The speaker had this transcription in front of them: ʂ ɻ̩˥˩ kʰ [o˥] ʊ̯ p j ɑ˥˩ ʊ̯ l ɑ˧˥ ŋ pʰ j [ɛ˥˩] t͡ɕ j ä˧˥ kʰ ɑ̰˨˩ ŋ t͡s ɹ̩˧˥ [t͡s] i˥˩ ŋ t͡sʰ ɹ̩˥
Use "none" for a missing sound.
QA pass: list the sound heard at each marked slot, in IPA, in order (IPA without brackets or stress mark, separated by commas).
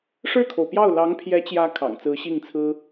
o˩, ɛ˧˥, ɕ